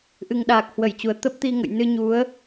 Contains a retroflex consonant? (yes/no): no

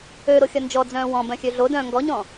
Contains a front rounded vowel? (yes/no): yes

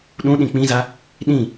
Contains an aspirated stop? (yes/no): no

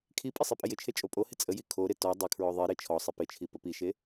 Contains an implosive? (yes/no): no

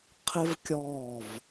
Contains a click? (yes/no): no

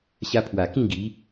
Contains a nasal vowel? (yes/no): yes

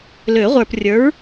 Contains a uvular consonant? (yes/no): yes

